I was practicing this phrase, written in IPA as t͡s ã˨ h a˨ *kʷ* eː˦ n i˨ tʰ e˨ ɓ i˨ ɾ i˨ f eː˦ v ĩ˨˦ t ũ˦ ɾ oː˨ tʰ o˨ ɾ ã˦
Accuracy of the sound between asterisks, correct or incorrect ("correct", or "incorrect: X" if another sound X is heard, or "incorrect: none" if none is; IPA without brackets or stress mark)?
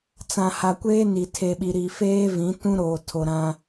correct